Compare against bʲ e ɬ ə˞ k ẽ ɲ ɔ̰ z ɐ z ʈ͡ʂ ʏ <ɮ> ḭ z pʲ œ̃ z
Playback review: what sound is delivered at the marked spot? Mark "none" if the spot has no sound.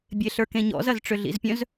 ɮ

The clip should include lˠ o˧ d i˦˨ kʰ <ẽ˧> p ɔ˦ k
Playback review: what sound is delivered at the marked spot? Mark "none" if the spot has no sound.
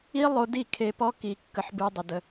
e˧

